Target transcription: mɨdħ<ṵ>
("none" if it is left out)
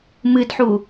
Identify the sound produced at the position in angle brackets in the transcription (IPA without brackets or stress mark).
u